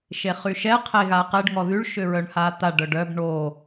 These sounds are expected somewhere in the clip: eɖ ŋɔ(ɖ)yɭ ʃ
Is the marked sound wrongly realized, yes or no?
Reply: yes